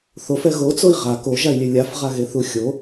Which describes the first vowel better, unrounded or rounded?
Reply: rounded